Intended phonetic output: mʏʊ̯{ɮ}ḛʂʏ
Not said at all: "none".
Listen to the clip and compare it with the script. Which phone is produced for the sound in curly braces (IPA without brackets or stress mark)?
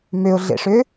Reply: ɮ